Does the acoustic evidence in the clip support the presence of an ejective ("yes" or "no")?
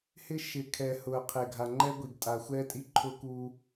yes